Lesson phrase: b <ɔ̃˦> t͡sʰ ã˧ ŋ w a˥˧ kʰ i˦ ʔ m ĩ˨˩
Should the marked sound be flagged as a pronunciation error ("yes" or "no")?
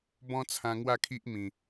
no